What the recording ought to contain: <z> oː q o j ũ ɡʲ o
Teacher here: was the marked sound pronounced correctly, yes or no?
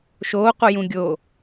no